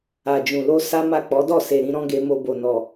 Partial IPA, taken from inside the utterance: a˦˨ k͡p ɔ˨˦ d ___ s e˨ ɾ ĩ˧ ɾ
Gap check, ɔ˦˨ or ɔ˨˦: ɔ˦˨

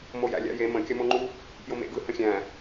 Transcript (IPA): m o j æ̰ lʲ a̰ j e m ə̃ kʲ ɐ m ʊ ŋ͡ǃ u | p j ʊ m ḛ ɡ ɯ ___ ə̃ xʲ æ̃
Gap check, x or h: h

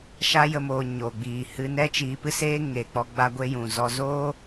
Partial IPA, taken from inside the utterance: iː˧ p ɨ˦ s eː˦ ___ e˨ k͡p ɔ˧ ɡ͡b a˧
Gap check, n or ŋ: ŋ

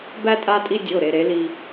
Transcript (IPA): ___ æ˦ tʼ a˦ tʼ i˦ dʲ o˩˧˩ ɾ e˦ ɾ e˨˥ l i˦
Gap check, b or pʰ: b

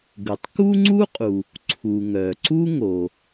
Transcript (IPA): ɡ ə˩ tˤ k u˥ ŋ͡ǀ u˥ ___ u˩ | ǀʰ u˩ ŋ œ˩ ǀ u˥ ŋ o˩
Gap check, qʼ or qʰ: qʼ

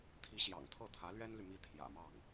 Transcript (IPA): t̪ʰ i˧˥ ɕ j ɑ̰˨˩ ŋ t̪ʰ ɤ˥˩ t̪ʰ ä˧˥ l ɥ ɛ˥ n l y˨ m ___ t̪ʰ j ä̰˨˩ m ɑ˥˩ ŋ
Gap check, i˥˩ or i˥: i˥˩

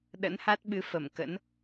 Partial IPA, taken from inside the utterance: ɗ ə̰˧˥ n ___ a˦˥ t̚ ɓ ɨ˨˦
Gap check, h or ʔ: h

